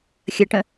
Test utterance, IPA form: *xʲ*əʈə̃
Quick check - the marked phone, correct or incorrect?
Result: correct